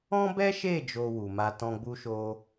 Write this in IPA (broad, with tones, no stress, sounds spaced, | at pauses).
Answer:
ɔ̃˦ b ɛ˦ ʃ e˦˨ d͡ʒ o˧ w u˨ m a˧ t ɔ̃˧ ɡ͡b u˧ ʃ o˧